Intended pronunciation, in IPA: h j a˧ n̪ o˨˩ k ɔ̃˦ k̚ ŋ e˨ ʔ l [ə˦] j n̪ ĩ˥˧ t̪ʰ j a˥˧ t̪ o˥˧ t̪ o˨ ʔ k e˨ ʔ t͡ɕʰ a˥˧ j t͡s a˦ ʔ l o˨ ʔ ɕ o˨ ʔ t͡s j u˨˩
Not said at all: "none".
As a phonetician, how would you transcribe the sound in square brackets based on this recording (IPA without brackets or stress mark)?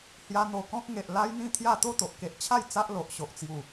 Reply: a˦